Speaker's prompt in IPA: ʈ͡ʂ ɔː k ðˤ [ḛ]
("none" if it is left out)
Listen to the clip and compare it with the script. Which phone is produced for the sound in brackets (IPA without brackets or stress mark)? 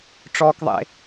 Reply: ḛ